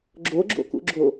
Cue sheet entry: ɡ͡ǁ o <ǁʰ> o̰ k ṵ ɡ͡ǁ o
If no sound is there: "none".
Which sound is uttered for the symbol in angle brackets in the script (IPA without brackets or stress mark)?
ɡ͡ǁ